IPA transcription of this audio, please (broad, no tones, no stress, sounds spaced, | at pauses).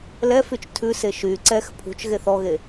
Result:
l ɛ f y t͡ʃ tʰ ʉ s e ʃ y ǀ ɛ x pʰ ṳ t͡ʃ ɣ e θ ɔ ɣ e